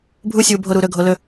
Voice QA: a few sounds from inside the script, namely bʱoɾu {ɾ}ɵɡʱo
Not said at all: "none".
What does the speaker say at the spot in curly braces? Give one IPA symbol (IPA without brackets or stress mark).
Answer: ɾ